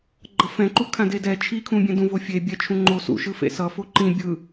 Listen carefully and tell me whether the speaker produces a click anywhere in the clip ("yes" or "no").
yes